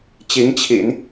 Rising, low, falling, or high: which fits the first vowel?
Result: rising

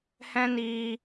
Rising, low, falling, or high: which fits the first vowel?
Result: high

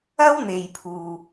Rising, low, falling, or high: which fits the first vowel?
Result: high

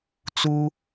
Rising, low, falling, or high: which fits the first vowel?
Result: high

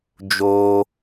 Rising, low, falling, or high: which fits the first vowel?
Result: high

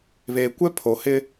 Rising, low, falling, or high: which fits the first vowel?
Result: low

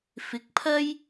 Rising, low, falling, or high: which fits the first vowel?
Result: rising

